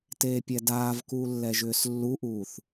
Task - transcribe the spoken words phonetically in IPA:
teːpʲɛdaːvkuː lːɛʒʏːslːuʔuːθ

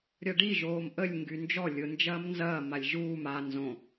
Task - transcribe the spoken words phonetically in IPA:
ɾʲɐɖi ʒoːmʔəlʲ ŋɡynd͡ʒɔ lʲʊ nd͡ʒɐːmnzɐː malʲʒuːm a nzõ

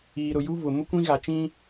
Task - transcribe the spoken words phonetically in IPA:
iː˨ɾʊ˨ju˦ vʊ˨ mʊ˦kʷĩ˦ɣa˨t͡ʃĩ˦

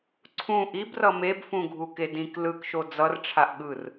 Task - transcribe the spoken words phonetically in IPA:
ǀʰũ ʔibrʌ mebfũɡʱuke dĩk lɯkʃo d͡zʌrʈ͡ʂʰaʔɠɯr

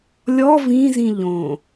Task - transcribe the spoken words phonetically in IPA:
lʲɔ vĩzĩ ʎõ

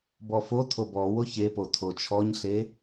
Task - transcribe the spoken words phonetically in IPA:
bɔfotʰob ɔ woçepo tʰot͡ʃʰɔɲɬe

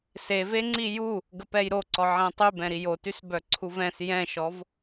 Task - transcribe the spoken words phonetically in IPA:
seve ŋ͡ǀiju | ɡəpɛjɾoǀɔ ʕɛ̃tˤybɛ̃ɾi jotys bœǀʰuvɛ̃s jɛ̃ʃɔv

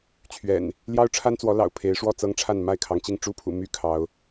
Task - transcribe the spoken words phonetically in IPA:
t͡ɕʰɥɛ̰˨˩n | ljɑ˦ʊ̯ʈ͡ʂʰa˦nt͡swɔ˨˦ lɑ̰˨˩ʊ̯pʰe˨˦ɪ̯ʂwɔ˥˨ t͡sɤ˦ŋʈ͡ʂʰa˥˨n ma˥˨ɪ̯kʰɑ˩ŋt͡ɕi˥˨ŋ ʈ͡ʂu˦pʰṵ˨˩ my˦ kʰɑ˨˦ʊ̯

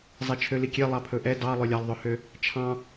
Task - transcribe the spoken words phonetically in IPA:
zˤɛt͡ʃʰølikʲe lˠɑpʰɵʔɛ dɑ lˠølʲɑlˠðˤɵhø | t͡ʃʰɑ̃

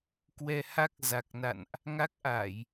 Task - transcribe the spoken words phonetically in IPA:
kwɛ˧ha˦˥k̚ za˨˩k̚na̰˧˨nʔ | ŋa˦˥k̚ʔa˧˩˨j

